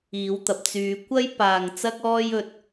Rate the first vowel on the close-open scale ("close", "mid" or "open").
close